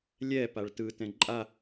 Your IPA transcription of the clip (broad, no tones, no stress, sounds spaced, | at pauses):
lʲ ɛ p a ɭ t ɯ t ɛ̃ ǃʼ a